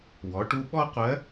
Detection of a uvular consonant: present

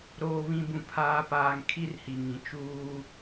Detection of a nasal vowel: present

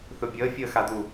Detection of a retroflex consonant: absent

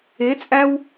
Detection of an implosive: absent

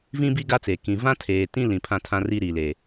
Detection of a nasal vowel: present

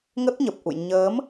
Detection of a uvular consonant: absent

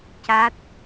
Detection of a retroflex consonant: absent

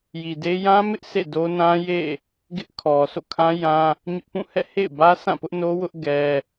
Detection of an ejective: absent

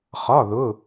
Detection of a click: absent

